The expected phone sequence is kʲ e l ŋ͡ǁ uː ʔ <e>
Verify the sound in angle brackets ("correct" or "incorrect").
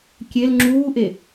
correct